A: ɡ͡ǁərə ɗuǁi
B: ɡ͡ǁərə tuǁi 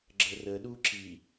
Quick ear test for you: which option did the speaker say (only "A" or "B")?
A